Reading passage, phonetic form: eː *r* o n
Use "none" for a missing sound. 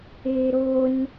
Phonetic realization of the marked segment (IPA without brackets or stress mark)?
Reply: ɾ